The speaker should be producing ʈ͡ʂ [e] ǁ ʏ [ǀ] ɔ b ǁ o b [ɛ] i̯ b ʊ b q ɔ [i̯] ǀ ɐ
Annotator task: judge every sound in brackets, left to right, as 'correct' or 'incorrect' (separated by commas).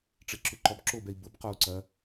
correct, incorrect, correct, incorrect